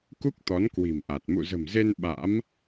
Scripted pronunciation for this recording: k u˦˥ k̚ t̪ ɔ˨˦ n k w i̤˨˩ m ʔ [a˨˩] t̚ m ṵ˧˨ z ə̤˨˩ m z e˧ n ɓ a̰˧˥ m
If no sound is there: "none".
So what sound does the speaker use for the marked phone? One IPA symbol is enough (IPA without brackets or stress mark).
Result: a˨˩